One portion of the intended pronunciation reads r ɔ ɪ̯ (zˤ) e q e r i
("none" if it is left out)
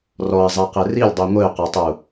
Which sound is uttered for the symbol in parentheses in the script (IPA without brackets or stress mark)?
zˤ